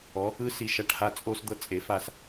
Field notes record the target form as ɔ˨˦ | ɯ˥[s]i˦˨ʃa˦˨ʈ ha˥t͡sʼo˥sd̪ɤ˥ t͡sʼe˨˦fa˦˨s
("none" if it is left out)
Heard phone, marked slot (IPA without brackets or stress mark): s